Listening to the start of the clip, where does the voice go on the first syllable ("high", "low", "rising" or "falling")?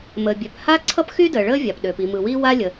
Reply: low